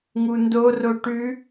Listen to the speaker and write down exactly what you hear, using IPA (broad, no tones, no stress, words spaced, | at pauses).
ŋundoro ʈʉ